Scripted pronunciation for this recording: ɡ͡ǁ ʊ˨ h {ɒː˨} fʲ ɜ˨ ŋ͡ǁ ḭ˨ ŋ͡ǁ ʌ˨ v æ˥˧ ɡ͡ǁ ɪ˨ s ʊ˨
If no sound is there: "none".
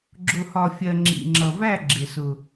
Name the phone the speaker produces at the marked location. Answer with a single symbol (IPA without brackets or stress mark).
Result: ɒ˨